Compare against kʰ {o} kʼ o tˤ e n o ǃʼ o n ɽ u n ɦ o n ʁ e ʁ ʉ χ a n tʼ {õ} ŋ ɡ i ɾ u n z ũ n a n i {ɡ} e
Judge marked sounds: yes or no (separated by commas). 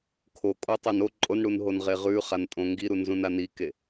yes, yes, no